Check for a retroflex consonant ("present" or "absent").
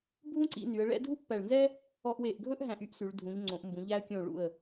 present